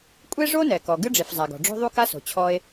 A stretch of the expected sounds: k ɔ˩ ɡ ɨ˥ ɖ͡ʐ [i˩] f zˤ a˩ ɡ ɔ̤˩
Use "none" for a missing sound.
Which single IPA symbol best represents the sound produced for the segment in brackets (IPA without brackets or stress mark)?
i˩